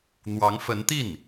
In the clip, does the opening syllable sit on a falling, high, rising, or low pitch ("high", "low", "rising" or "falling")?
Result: rising